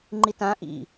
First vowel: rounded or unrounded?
unrounded